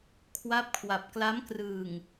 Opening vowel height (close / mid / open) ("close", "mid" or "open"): open